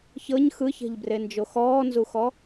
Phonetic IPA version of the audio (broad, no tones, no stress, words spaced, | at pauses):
çɤɲ xɯçɛ̤ʎbrend͡ʒo xɔːnzuxɔ